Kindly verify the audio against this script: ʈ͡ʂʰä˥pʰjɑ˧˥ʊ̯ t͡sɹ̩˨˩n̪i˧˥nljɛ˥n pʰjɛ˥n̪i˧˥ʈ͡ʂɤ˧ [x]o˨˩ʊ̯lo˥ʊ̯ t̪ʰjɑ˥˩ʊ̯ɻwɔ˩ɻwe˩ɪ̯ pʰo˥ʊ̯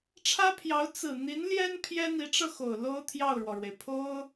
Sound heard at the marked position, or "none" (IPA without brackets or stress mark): x